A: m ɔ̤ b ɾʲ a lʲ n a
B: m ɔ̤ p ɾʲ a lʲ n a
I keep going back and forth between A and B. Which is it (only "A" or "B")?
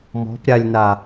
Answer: B